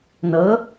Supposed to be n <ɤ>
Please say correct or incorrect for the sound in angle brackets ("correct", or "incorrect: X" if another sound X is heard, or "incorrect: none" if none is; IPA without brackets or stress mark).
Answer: correct